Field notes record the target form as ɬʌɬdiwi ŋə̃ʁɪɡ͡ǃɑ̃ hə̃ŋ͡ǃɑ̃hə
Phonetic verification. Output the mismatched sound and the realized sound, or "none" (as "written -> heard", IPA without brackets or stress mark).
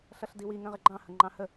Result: none